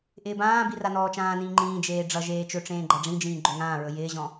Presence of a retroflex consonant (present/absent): present